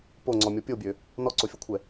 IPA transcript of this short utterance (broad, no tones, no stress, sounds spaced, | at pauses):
p o ŋ͡ǀ ɔ mʲ ɔ pʲ o bʲ ø | n ɔ ǀ o fʲ ɔ kʷʰ ɛ